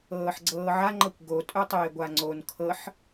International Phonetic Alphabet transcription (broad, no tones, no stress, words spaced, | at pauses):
ɤːħɡ͡ǀɤːʕaŋ͡ǃɤkʷ ɡotʼœtˤeː ɡʷaŋ͡ǀon kʰɤħ